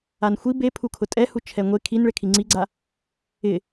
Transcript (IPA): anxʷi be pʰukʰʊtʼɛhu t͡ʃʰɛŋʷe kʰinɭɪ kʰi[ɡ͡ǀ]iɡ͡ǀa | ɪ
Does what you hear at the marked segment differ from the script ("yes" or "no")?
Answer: yes